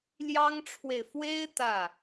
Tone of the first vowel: high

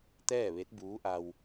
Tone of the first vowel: falling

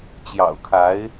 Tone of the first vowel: low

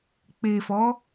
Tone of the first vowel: low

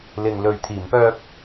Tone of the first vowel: low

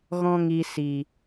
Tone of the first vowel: high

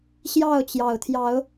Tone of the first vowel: falling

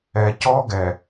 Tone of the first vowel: low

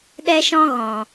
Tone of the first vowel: high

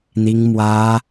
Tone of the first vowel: high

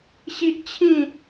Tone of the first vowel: high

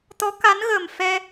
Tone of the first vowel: rising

